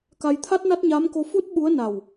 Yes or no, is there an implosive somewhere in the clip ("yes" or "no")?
yes